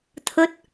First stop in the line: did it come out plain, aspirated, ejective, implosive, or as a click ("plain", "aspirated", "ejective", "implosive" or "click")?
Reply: aspirated